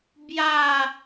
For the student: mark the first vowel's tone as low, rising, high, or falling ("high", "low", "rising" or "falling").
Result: falling